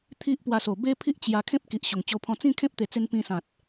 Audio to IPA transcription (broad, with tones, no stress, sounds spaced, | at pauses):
t̪ʰ i˦ ʔ p w a˧ s o˨˩ b e˦ pʰ i˦ ʔ t͡ɕ j a˧ kʰ ẽ˦ p̚ k i˨ ʔ ɕ o˨˩ ŋ t͡ɕ o˧ pʰ ɔ̃˧ t͡s ĩ˥˧ kʰ ẽ˦ p̚ t̪ e˨˩ t͡s e˧ n p ĩ˧ s ã˨ t̚